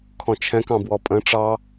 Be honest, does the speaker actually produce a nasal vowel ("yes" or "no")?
yes